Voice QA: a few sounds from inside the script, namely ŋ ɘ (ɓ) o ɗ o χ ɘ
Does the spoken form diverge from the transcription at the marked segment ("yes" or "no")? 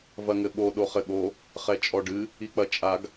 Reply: no